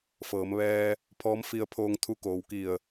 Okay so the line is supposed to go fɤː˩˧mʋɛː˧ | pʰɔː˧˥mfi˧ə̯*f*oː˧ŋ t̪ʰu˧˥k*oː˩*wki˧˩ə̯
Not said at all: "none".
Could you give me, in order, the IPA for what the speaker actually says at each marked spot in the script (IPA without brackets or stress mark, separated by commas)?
pʰ, oː˩